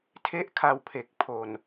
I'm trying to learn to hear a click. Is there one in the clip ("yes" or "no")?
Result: no